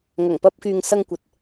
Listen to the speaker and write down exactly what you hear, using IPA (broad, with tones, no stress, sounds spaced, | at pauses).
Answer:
ŋ ɐ˨˩ ŋ p ɐ˧ p̚ k yː˨ ŋ s ɐ˧ ŋ kʷ ɐ˨ t̚